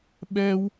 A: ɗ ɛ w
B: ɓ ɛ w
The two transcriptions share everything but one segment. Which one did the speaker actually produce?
B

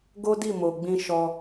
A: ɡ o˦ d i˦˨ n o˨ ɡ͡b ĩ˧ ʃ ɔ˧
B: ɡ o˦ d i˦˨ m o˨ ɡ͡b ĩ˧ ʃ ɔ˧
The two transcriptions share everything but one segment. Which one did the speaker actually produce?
B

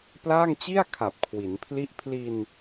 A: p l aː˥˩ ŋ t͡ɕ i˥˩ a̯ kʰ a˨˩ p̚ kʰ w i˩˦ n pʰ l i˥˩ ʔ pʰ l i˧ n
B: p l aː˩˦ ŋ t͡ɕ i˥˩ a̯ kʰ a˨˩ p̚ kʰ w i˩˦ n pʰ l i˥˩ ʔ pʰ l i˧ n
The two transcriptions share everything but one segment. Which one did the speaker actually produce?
A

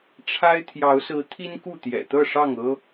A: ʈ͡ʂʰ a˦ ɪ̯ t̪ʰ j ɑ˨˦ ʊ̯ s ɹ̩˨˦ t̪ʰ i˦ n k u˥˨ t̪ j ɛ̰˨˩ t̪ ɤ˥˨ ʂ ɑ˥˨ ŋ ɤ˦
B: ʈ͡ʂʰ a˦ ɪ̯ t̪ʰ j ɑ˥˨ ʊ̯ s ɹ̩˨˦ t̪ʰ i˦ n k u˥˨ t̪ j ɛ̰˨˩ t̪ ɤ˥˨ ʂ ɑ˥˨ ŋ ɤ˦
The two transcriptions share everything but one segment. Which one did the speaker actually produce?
A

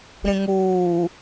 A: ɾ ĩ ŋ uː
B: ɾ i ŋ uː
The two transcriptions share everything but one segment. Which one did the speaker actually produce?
A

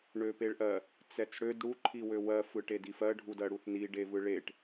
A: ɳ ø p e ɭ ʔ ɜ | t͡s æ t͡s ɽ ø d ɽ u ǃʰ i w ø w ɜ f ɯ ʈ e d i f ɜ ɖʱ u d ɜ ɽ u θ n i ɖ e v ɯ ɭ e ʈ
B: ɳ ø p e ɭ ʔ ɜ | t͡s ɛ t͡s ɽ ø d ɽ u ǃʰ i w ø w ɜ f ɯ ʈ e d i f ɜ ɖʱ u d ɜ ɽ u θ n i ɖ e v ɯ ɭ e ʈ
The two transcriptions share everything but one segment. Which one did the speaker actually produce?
B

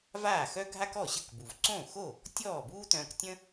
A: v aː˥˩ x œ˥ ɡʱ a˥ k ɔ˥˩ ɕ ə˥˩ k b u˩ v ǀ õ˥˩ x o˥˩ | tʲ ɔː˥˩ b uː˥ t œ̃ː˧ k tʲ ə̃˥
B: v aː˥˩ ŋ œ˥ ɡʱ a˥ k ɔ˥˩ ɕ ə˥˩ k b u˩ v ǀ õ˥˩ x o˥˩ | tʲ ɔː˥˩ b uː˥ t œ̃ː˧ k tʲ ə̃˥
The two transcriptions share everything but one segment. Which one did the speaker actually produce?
A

